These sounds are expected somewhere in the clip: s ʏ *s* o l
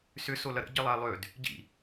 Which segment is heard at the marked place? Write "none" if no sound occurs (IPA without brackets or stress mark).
s